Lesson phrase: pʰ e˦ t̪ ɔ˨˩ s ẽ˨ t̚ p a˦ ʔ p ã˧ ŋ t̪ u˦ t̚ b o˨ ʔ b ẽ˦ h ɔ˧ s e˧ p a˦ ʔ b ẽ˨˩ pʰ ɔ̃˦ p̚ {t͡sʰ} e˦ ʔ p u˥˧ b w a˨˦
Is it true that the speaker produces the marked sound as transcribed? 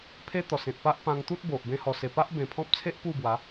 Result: yes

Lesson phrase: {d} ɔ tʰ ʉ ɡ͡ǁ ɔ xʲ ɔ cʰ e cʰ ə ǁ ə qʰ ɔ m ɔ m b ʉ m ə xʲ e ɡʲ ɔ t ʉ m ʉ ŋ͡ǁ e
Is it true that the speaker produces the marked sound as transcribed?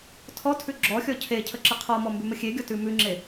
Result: no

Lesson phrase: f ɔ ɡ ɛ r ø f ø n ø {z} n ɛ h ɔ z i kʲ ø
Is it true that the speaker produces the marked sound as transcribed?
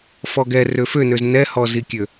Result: yes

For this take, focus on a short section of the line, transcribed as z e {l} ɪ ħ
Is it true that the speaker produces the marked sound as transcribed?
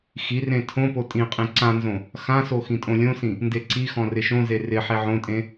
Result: no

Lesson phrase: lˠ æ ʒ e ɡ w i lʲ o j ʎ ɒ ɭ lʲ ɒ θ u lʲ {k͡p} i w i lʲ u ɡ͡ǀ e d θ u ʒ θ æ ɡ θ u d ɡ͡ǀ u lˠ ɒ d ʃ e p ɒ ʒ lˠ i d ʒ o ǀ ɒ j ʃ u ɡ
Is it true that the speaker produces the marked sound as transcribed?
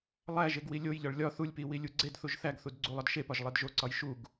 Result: no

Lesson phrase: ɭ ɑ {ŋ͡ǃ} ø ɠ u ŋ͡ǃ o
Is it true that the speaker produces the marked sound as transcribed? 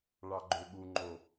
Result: no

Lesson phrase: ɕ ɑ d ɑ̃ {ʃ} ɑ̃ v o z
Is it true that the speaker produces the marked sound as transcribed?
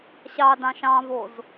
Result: yes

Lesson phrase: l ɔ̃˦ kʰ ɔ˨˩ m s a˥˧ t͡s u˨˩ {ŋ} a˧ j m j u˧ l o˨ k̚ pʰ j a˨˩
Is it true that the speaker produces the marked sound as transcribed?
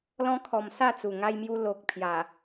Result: yes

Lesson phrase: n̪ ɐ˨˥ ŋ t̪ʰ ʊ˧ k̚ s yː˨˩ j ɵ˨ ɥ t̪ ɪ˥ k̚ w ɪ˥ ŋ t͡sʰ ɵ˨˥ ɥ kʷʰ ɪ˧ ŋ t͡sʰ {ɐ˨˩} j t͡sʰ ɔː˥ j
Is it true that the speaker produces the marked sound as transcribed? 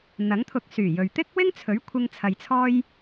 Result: no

